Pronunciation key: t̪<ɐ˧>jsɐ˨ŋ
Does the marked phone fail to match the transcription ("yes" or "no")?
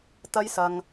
no